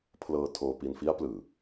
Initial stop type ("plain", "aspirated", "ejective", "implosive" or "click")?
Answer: aspirated